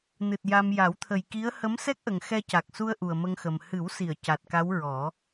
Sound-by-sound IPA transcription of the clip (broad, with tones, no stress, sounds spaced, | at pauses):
n ɨ˨˩ t̚ j a˧ m j a˨˩˦ w t̪ʰ ə˨˩ j k i˧˥ ə̯ h ə˧˥ m s ɛ˦˥ k̚ ʔ ə˨˩ ŋ x ɛ˧ c a˨˩ k̚ s u˧ ə̯ ʔ u˨˩ ə̯ m ə˧ ŋ x ə˨˩ m h ɨ˨˩˦ w s i˨˩˨ ə̯ c a˨˩ t̚ k a˧˥ w ɹ ɔ˨˩˦